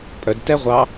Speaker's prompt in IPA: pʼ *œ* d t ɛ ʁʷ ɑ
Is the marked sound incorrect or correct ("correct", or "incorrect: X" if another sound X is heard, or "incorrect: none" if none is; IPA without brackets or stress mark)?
correct